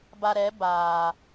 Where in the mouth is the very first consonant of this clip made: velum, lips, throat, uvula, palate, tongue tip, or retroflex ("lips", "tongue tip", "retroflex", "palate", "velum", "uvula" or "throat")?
lips